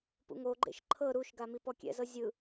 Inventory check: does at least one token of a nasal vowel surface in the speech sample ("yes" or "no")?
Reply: no